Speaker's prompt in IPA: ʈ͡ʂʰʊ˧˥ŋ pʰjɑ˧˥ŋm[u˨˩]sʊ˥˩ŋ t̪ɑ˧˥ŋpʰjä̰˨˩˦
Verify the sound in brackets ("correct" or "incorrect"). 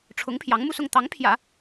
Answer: incorrect